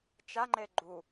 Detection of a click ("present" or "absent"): present